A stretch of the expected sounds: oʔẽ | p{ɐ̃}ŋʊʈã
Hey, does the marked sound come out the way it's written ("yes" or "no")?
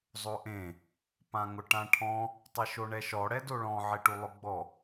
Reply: no